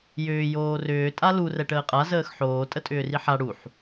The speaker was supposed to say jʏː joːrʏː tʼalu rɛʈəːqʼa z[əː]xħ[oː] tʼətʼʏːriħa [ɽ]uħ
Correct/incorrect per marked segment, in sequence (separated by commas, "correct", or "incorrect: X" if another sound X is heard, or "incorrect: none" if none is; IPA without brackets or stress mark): correct, correct, correct